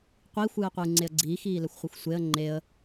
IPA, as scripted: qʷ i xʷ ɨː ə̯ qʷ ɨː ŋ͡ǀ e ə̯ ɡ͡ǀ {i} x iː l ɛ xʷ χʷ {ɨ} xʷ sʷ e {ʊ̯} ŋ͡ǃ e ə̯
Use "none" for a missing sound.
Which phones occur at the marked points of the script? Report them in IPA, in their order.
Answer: iː, ɨ, ə̯

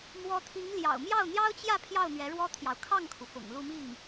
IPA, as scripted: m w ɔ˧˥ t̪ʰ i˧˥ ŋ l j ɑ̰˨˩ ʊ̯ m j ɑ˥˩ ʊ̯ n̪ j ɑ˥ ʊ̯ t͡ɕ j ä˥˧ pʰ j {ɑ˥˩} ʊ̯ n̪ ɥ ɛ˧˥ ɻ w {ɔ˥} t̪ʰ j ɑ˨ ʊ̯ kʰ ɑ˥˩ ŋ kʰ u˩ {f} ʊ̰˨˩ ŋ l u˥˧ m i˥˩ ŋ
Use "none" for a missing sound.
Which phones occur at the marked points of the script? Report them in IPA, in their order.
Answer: ɑ˥˩, ɔ˥, f

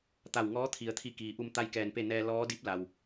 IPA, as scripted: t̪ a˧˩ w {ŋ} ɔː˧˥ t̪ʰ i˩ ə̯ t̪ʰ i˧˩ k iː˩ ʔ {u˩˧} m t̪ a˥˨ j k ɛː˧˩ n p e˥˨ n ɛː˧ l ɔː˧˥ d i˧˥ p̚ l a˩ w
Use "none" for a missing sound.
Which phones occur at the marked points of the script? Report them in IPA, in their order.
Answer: ŋ, u˧

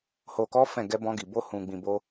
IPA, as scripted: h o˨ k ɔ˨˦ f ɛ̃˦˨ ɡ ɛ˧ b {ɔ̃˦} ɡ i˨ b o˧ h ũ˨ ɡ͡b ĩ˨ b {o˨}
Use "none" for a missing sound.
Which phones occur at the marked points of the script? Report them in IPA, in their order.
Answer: ɔ̃˧, o˧

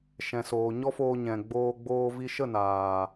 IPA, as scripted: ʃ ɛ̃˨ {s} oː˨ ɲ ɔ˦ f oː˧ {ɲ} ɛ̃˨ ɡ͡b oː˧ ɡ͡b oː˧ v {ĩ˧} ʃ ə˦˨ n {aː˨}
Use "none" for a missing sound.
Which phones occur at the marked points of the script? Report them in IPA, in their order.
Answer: s, ɲ, i˧, aː˨

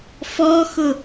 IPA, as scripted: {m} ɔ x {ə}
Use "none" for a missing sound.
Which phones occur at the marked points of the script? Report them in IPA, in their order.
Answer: f, ʊ

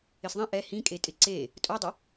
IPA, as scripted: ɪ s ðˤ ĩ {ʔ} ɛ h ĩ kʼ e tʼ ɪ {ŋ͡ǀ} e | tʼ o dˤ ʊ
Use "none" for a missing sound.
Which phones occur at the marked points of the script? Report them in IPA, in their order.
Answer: ʔ, ǀ

